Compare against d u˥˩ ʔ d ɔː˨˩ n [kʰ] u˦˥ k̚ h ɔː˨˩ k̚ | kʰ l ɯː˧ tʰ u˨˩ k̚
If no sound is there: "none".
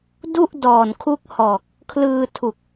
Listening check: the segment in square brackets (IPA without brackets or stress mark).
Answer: kʰ